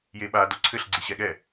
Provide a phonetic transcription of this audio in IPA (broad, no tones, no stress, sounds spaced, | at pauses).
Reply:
j e ɓ a d o ǀʰ ɘ ɬ ɡ͡ǀ i ɕ ɛ ɠ ɛ